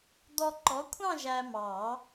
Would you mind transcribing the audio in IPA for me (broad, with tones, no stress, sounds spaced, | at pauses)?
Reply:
d̪ ɔ˧ ǃ ɔ˨˥ kʷʰ ɑ̃˥˧ ʒ æ˧ m ɑ˨˩˦